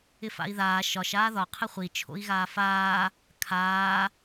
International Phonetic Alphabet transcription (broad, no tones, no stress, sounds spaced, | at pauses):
ɪ f a̰ i̯ ð aː ʃ ɒ ʃ aː ð ɒ qʰ ɪ χʷ i t͡ʃʰ o̰ i̯ ɣ aː f aː | kʰ aː